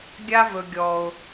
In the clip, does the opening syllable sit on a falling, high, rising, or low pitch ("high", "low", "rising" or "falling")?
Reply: high